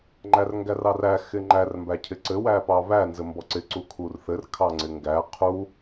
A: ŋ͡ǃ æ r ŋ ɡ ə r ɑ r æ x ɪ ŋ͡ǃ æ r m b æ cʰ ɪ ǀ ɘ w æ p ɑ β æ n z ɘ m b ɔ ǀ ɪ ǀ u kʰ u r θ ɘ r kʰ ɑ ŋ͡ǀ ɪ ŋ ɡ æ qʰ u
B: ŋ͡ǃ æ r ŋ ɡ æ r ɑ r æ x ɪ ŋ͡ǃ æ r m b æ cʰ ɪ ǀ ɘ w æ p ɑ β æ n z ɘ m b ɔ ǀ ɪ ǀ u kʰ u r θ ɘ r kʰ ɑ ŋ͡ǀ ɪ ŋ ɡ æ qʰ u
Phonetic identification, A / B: B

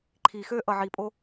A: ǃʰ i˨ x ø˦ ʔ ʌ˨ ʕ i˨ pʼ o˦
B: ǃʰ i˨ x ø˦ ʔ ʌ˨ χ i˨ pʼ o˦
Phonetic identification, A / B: A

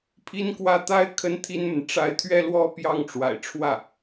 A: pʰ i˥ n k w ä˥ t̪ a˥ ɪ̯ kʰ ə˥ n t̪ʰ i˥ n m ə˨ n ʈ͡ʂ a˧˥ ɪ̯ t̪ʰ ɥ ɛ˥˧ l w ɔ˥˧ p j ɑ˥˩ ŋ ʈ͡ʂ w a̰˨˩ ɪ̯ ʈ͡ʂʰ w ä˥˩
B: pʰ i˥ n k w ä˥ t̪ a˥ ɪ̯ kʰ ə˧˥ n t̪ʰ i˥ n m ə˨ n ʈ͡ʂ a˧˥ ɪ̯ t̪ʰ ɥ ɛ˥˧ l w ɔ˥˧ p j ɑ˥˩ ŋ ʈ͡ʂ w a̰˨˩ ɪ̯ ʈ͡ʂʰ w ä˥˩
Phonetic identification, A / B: A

